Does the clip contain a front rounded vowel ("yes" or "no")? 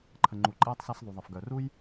yes